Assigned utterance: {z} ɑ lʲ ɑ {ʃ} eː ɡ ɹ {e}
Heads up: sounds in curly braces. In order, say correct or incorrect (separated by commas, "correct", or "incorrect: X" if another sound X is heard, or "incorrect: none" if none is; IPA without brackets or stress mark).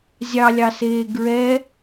incorrect: zʲ, incorrect: s, incorrect: ɛ